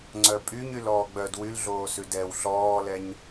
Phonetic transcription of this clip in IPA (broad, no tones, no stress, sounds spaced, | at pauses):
ŋ͡ǀ œ pʼ y ɲ y l ɔː ɡ͡b œ d w y l ɮ oː s ʉ d ɛ w ɬ ɔː l ɛ ɲ